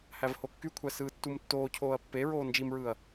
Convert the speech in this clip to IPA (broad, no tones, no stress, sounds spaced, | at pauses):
h æ v h o kː y kʷʰ æ s ɯː tː u m tː oː cʰ oː ɐ̯ pː e ɹ oː n d͡ʒ i m ɹ ɯː ɐ̯